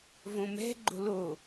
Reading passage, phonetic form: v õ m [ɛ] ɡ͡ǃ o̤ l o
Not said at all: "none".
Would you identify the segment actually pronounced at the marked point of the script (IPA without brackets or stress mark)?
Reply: ɛ̤